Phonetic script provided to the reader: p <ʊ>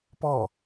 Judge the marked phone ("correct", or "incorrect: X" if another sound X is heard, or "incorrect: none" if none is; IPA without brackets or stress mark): incorrect: ɔ